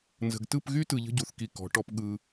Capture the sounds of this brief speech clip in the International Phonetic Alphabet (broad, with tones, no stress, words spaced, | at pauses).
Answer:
nzə̤˨ɡtɯ˦˨pɣy˦tɯ˨ ʎə̤˦ɟu˨θki˨ kɔ̤˨˦ʈɔ˦p ɠɯ˦